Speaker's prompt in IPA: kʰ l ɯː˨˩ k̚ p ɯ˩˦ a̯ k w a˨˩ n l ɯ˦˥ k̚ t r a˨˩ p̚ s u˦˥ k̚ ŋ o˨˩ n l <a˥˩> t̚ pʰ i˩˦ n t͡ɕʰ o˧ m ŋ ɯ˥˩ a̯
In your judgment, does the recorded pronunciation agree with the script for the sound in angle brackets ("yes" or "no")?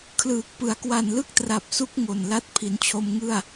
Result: no